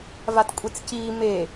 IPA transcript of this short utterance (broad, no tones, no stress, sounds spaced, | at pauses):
v a t kʷʼ e t͡s c iː m e